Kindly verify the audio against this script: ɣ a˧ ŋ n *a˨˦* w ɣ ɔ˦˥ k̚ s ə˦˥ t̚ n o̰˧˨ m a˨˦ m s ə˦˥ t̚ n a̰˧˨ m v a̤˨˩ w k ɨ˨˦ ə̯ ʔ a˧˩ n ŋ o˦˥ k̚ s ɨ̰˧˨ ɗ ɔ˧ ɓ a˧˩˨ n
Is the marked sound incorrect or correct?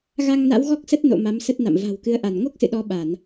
incorrect